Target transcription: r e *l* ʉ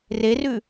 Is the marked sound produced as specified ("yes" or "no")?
no